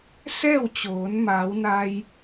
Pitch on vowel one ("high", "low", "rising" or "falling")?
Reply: falling